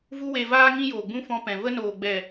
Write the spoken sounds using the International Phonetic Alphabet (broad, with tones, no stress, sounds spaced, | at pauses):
v u˦ w e˧ v aː˦ ŋ ĩ˧ j oː˨ ɡ͡b ũ˧ f ɔ̃˧ p ɛ̃˨ v ə˧ n oː˨ ɡ͡b ɛ˨